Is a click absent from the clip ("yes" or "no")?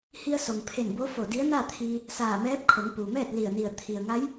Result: yes